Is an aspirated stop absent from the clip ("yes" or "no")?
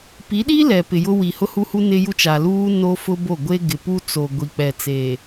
yes